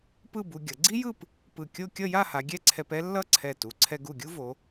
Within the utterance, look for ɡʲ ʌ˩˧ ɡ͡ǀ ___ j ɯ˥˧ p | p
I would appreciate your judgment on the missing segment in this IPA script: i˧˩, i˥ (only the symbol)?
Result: i˥